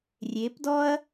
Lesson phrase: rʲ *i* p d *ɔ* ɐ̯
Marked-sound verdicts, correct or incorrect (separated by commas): incorrect, correct